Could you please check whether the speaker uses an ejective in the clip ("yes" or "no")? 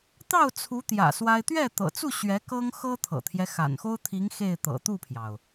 no